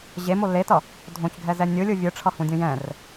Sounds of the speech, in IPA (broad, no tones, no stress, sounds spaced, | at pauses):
ʑ e m o l e t ʌ | dʱ õ c ɡʱ ɛ z ɛ nʲ ɯ lʲ ɯ vʲ ɯ ʈ͡ʂʰ ʌ h ũ dʲ ũ j ɛ̃ r